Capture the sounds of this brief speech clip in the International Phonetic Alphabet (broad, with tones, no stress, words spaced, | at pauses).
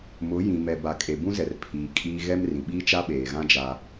mʊ˨˦jĩ˨mɛ˨ ba˨kʼe˨bũ˦zɛ˨r pʰiː˨ kʼiː˦ ɣɛ˦mrĩ˨ ɓiː˦t͡ʃa˦ɓeː˨ɣã˦ d͡ʒaː˦